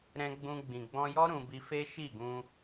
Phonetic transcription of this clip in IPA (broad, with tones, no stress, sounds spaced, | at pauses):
ɾ ɛ̃˧ ɡ͡b ũ˧ ɡ͡b ĩ˨ ɡ͡b ɔ̃˧ j ɔ˦ ɾ ũ˧ b i˧ f e˦ ʃ i˦˨ ɡ ũ˧